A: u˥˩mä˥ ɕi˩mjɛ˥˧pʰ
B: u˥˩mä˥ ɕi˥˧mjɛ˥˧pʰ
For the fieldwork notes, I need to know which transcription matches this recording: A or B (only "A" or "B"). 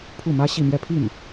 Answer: B